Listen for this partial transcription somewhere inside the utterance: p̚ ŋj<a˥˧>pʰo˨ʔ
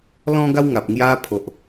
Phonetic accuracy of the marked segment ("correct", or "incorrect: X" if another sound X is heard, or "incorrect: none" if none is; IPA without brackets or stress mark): incorrect: a˧